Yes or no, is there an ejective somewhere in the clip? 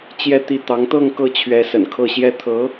no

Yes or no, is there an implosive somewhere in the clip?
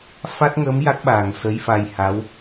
yes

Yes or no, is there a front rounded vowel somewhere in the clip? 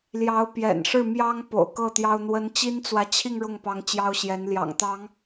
no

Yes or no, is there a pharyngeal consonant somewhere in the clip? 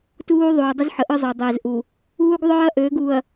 yes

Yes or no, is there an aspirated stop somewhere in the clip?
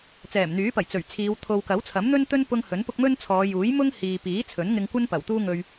yes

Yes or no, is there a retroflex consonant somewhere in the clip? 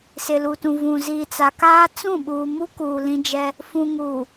no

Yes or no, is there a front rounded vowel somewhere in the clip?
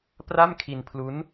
no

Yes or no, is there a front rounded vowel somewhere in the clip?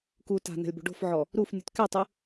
no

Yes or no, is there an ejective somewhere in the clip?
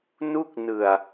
no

